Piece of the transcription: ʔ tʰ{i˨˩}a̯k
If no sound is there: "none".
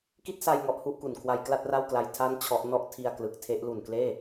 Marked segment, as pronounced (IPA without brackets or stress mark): i˧